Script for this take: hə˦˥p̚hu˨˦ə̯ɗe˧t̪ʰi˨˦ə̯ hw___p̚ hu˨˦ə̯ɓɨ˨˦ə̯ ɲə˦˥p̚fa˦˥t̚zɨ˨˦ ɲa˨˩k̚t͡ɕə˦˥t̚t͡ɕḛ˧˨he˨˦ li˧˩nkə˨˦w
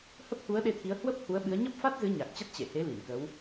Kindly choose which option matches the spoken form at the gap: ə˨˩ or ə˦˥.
ə˦˥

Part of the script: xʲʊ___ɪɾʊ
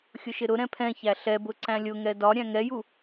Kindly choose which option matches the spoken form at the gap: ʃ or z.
ʃ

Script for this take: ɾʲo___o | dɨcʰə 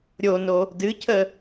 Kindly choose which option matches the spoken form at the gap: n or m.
n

